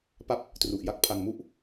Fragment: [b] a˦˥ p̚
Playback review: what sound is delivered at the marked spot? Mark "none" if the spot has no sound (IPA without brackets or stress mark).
p